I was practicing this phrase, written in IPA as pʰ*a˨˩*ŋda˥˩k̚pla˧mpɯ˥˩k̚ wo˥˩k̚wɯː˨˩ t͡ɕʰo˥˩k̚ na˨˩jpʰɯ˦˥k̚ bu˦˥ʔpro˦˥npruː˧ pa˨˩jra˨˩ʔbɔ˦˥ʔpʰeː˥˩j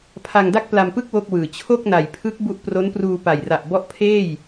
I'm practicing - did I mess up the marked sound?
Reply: yes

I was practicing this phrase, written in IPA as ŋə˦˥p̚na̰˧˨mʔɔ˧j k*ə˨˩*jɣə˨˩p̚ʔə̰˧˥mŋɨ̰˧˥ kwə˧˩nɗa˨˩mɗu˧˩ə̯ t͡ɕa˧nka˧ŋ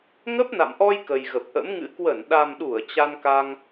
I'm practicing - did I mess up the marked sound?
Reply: no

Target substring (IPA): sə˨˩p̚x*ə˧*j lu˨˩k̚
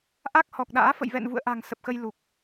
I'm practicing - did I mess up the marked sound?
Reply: no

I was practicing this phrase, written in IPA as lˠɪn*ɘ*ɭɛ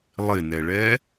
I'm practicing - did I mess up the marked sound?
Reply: yes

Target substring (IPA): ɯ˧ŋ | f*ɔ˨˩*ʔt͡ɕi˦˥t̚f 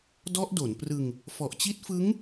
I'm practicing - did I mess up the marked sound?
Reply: no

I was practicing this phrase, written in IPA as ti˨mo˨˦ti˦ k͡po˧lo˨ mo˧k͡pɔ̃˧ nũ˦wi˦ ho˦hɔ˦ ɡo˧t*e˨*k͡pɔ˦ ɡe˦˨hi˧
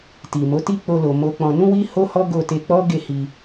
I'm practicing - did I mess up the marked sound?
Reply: yes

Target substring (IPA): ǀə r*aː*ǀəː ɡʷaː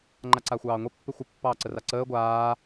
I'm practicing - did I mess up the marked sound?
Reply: yes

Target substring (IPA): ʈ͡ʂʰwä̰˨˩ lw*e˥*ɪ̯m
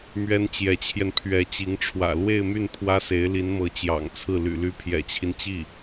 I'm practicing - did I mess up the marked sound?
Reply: yes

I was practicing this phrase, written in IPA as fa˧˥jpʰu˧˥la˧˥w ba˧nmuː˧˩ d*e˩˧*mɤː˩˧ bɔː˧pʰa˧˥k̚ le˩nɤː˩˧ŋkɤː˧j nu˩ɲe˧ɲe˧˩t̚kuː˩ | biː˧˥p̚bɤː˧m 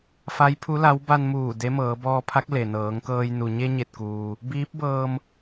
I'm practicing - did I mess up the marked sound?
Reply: yes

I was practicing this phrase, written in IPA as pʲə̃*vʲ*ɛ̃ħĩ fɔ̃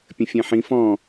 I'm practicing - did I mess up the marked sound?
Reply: yes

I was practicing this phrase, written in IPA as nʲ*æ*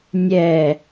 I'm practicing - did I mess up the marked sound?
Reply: yes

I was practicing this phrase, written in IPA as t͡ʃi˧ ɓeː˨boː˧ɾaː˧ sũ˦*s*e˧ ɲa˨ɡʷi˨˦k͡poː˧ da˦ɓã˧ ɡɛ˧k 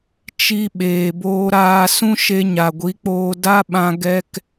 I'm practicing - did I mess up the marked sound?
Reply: yes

